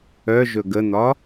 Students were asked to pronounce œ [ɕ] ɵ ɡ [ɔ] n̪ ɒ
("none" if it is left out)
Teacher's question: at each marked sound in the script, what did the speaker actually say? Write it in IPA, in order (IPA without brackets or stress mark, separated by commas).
ʒ, ə